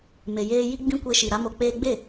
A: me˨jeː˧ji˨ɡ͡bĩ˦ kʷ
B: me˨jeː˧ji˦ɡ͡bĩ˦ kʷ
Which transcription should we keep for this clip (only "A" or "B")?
B